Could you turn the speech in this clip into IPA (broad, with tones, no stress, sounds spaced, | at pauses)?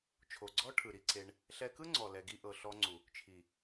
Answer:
t͡ʃʰ o˨ ɡ͡ǀ ɔ˦ ʈʰ ɯ˨ ɾ i˧ ǀ e˧ ɳ | ɬ ɛ˧ k ɯ˦ ŋ͡ǀ ɔ˨ l ɛ˧ ɡ i˦ ʔ ɤ˧ ɬ ɔ˧ ŋ͡ǀ u˨ | t͡ʃʰ i˨